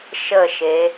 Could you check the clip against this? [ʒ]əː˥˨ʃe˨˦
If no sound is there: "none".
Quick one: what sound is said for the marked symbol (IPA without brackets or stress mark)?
ʃ